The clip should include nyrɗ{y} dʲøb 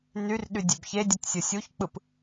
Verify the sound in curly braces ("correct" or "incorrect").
correct